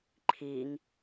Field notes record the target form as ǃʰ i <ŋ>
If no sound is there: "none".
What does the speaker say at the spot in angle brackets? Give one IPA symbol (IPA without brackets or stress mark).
ŋ